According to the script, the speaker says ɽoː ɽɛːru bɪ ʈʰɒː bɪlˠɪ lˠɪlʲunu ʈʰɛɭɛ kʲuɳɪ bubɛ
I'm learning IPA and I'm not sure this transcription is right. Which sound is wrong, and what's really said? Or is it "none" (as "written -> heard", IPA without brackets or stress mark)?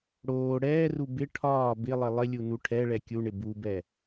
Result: none